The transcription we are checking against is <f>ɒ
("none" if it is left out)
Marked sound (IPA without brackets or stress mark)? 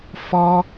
f